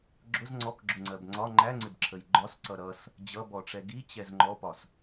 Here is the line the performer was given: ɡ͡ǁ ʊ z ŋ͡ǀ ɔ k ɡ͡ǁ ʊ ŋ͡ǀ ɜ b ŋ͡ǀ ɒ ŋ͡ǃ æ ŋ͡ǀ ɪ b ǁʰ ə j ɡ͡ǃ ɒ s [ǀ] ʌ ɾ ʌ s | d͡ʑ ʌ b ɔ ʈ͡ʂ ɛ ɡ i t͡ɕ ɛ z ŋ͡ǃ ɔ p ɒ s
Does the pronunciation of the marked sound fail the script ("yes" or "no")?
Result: no